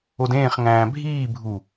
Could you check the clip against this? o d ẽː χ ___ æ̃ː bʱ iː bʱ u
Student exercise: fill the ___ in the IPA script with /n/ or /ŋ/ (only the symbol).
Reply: ŋ